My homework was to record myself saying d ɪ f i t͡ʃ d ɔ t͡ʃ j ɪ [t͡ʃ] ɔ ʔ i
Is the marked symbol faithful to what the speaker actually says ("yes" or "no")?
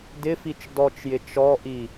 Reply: yes